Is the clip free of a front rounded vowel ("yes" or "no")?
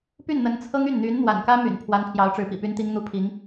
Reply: no